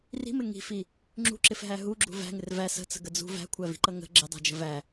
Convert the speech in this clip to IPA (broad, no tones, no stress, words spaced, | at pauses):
ri̤mɪ ŋi̤fi | ŋ͡ǁṳǁɪfɦæ ɦuɡ͡ǁṳ væ̤ŋɪr væ sə̤t͡sə̤ɡə d͡zṳ væ̤kʷʰævi̤ǃʌ ŋə̤ ɡ͡ǁɪdˤæ̤d͡ʒə̤ væ